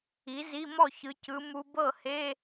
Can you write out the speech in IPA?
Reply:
i˩˥zi˧˥˧ mɔ˥˩çɯ˩˧cɯ˩˧ mu˧ bɤ˥˩he˧˥˧

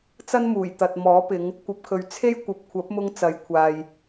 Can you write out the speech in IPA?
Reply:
t͡sɐ˥nmuː˨˩jt̪ɐ˨t̚ mɔː˨˥pɪ˨˧ŋ | kʷɐ˧p̚kʰɵ˨ɥ t͡sʰe˥jkʷɐ˨p̚kʷʰɐ˨˥p̚mʊ˧ŋ t͡sɐ˨˥jkʷʰaː˨j

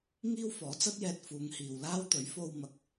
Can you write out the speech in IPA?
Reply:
ŋiː˥w fɔː˨˥ t͡sɐ˥t̚jɛː˧t̚ fuː˨˧ŋhiː˨w laː˥w t̪ɵ˨˥ɥfo˧w mɐ˨˥k̚

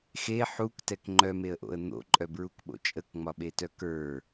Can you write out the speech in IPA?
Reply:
xe ħuktɛk ŋ͡ǃœmeə̯ʔo̰ə̯ n̪o̰ǃʼœbɹukɓo̰ t͡ʃʼəkŋ͡mɒɓetœ kə˞

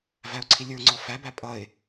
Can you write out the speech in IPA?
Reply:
væʊ̯ǀʰilʲə˞ŋ͡ǀɔ fæbæ pʼʌɪ̯

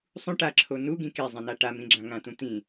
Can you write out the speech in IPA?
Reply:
sˤũ ʈaǁʰo nuɡĩ kezˤĩna ʈamĩɡ͡ǁã ŋãt̪ũt̪ĩ

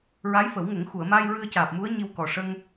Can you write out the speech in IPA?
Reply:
ɹaː˧˥jfə˨˩˦w ŋə˨˩˦ŋ xu˨˩˨ə̯ma˧j ɹɨ˧ə̯caː˨˩p̚mu˧˥ə̯ ɲi˧wkɔ˨˩ʂə˧ŋ

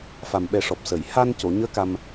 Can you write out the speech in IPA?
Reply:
fa˨˩mɓɛ˨˩˦ʂɔ˨˩p̚səː˨˩˨j ha˧nco˨˩˨ɲəː˧˥ ka˧m

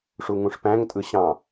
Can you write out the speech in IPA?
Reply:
ʂuŋũʂpæ̃ŋ tʼɯɕɑ̃

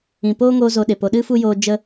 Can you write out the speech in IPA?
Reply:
ĩ˨poː˦ŋoː˧ zo˧ɗe˨po˧ ɗɨ˦ fu˦joː˧ d͡ʒə˦

